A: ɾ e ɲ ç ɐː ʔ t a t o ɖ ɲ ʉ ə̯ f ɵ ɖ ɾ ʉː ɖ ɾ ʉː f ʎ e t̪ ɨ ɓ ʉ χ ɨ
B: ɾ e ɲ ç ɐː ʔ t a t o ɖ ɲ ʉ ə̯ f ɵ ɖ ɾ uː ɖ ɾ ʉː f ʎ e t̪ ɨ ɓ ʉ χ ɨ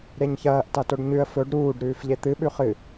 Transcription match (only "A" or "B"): B